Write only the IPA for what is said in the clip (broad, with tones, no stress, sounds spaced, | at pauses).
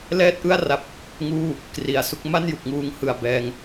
l ɛː˥˩ t̚ ʔ ɯ˥˩ a̯ r a˨˩ p̚ | ŋ uː˥˩ | k r i˩˦ a̯ s u˦˥ k̚ m a˥˩ n j u˨˩ k̚ ŋ uː˨˩ ŋ h ɯ˨˩ a̯ b ɛː˧ ŋ